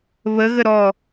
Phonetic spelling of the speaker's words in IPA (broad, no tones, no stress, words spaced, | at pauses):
βəɣə ɾɔ